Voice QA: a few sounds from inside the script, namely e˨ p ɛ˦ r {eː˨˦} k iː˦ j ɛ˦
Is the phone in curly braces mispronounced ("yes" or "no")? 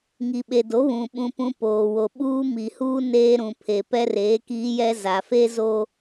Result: no